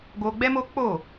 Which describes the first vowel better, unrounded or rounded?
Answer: rounded